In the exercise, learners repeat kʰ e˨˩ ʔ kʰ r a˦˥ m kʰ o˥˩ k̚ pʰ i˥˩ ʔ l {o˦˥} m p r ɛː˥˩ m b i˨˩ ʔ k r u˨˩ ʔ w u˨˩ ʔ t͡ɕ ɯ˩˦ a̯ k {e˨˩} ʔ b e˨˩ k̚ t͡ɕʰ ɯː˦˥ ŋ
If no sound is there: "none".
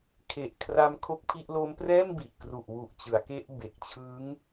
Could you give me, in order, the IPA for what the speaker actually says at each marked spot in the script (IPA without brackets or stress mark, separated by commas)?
o˦˥, e˦˥